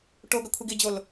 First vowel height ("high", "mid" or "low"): mid